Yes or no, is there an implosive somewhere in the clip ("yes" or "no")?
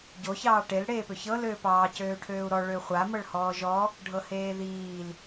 no